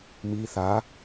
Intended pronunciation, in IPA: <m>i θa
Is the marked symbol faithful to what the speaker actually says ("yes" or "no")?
yes